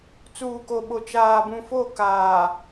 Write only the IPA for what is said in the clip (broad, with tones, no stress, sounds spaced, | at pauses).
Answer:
t͡s uː˨ k o˨ ɓ o˨ t͡ʃ aː˨ b ũ˨ f o˦˨ k aː˨